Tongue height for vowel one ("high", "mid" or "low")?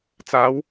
low